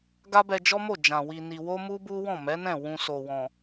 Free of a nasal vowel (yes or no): no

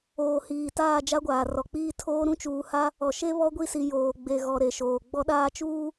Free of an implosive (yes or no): no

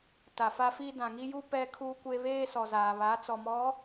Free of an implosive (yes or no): yes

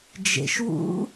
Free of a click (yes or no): yes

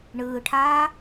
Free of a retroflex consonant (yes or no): no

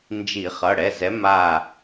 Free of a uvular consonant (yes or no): no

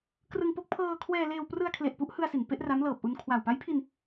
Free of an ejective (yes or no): yes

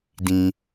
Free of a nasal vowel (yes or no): no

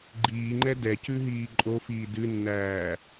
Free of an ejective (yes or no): no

